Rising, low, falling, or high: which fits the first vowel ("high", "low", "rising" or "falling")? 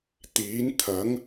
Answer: rising